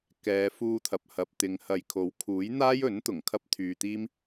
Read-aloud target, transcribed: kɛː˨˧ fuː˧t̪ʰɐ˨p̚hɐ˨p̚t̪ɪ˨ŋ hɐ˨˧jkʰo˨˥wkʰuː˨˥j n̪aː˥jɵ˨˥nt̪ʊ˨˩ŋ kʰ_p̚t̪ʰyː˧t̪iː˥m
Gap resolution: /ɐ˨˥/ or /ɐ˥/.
ɐ˥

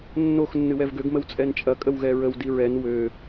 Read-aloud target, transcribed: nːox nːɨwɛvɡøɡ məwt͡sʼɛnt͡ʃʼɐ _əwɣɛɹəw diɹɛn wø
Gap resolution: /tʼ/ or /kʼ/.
kʼ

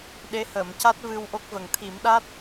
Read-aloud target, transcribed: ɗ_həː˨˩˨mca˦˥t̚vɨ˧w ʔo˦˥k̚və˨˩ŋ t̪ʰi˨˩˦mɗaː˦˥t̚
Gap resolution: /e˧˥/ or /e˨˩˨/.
e˧˥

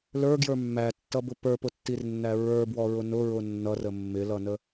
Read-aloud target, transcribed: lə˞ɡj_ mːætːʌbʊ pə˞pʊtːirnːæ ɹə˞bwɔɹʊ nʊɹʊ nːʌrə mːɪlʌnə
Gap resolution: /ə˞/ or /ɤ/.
ə˞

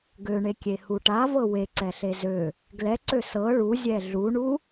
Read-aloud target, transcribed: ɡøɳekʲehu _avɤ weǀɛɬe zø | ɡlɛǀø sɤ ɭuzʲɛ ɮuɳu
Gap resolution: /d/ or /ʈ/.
ʈ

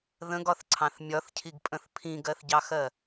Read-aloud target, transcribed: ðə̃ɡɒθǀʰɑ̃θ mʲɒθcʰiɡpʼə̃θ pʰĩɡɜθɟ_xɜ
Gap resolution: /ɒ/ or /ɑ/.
ɑ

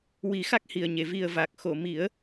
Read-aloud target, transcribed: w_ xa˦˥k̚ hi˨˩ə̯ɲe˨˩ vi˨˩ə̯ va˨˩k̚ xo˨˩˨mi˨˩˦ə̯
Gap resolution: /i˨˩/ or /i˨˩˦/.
i˨˩˦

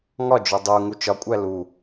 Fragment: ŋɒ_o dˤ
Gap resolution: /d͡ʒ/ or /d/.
d͡ʒ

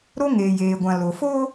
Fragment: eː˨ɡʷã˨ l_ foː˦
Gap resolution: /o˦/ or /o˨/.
o˨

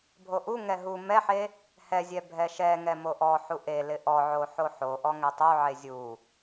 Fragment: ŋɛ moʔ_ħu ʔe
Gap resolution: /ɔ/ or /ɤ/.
ɔ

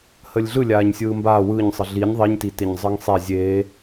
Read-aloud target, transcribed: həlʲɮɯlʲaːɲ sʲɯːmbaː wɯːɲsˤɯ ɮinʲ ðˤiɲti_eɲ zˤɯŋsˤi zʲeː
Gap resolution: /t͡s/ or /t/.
t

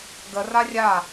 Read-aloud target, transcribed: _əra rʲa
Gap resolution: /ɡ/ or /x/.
ɡ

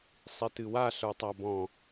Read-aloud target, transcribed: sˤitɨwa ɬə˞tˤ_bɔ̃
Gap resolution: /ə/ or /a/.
a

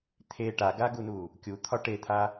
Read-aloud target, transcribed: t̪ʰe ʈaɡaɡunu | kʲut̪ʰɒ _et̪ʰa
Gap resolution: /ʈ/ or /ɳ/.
ʈ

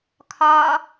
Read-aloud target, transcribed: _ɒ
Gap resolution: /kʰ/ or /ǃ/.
kʰ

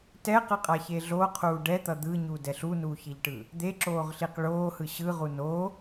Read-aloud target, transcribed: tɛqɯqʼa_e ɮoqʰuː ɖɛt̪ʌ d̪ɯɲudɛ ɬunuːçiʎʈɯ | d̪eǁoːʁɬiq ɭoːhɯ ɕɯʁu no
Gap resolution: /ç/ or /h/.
ç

